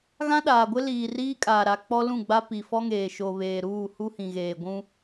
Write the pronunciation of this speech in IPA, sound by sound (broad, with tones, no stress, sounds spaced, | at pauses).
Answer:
ɣ ã˦ ɗ aː˨ ɡʷ ɪ˦ l iː˨ r iː˦ kʼ aː˨ ɾ a˨ k͡p ɔ˦ l ũ˦˨ ɡ͡b a˦ p i˨ f ɔ˦ ŋ eː˨ ʃ o˨ β eː˨ ɾ uː˦˨ h u˦ h ĩ˨ ɣ eː˨ ɡʷ ũ˦